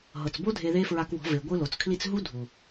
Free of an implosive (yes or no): yes